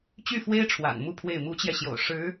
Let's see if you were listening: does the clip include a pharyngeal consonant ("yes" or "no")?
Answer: no